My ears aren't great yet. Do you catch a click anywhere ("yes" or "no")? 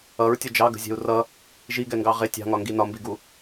no